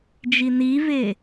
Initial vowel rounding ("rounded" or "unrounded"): unrounded